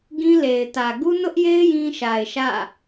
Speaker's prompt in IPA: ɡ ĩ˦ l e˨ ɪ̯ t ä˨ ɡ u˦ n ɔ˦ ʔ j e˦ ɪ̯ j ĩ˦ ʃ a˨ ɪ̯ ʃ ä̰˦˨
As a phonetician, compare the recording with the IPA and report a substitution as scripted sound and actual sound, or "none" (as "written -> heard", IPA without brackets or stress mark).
ɔ˦ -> ʊ˦